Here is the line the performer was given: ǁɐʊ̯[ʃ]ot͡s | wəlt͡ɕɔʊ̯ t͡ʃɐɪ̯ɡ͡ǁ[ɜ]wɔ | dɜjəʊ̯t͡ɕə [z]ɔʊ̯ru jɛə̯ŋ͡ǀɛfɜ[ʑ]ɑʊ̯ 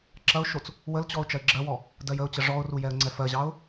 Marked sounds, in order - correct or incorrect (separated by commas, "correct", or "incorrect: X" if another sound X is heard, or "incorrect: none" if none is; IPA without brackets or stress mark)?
correct, correct, incorrect: ʐ, correct